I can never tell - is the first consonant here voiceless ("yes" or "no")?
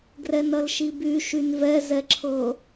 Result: no